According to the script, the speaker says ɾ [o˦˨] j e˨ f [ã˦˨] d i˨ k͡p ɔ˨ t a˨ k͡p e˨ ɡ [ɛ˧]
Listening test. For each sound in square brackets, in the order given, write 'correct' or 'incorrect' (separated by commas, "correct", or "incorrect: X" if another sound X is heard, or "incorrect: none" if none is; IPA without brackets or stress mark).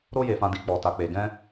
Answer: incorrect: o˧, incorrect: ã˨, incorrect: ɛ̃˧